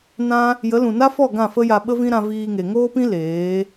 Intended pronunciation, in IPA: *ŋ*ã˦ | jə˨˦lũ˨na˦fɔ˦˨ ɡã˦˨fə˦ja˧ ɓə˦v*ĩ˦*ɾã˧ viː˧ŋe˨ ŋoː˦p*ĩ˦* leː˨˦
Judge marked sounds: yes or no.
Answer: no, yes, yes

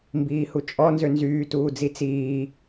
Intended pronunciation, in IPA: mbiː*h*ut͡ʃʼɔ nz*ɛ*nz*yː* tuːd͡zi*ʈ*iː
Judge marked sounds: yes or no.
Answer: yes, no, yes, no

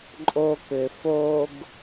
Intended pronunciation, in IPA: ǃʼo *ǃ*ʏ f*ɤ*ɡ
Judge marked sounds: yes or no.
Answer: no, no

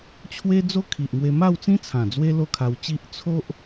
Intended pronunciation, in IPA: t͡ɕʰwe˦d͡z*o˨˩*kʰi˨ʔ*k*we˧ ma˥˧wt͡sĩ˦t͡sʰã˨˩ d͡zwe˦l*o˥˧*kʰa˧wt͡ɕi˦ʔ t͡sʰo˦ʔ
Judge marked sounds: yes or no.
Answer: no, no, yes

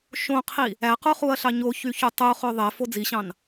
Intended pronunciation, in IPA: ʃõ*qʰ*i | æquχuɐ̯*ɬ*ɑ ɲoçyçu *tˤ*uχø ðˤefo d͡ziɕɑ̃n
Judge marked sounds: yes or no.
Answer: yes, yes, yes

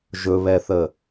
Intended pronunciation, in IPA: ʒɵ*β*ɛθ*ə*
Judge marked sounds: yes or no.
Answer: yes, yes

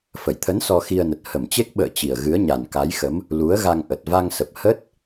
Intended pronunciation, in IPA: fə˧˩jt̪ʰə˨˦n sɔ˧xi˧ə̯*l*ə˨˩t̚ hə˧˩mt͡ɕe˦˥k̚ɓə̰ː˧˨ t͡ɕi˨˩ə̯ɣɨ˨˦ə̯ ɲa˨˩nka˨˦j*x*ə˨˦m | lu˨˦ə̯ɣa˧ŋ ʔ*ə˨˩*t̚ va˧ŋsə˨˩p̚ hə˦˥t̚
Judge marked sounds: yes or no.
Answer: no, yes, yes

